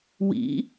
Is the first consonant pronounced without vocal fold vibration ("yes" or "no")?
no